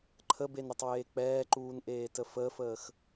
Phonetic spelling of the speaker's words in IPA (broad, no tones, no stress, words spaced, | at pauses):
ǃʰəbenɾətˤweː k͡pɛːǃuːnʔeːtə fəːfəːx